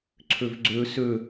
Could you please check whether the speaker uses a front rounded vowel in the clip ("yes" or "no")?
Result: yes